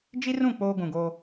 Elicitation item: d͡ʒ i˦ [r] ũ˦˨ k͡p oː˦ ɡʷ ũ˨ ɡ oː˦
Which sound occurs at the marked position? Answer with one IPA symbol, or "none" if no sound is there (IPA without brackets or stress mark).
r